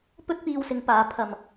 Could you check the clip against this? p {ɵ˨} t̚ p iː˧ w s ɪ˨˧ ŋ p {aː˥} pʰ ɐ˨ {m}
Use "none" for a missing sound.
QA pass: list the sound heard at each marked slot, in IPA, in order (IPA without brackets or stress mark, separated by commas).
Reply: ɵ˥, aː˨˧, m